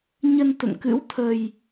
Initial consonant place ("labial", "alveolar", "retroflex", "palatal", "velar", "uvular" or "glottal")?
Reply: palatal